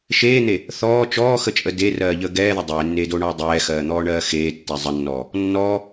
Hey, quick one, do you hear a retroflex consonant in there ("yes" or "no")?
yes